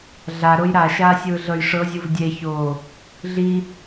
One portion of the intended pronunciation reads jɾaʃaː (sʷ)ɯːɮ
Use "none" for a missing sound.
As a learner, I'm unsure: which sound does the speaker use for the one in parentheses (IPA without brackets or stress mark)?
sʲ